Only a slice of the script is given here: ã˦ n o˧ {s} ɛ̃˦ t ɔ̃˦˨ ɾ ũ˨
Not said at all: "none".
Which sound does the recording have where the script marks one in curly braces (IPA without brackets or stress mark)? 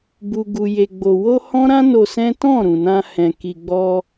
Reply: s